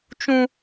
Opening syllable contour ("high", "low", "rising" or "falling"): high